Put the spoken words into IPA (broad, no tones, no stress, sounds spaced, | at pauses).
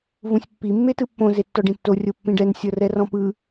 v ũ sʲ pː i mː e t ɯ pː õ z e tː ɔ ɖ ĩ tː o rʲ o pː ĩ ɖ ɛ n sʲ ɤ r ɛ r ɔ̃ p ɯ